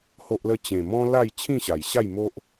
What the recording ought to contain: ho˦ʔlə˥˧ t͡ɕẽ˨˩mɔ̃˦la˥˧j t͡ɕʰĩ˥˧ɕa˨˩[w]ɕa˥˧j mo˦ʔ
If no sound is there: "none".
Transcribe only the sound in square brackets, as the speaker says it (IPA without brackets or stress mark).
j